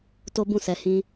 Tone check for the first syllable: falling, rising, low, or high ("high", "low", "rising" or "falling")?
high